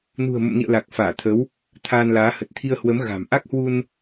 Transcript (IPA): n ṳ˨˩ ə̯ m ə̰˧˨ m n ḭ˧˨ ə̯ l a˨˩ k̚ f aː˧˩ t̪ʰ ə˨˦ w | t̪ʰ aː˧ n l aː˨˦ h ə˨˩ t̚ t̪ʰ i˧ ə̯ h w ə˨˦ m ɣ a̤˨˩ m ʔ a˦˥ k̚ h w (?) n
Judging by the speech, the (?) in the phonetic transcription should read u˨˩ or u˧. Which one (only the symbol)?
u˧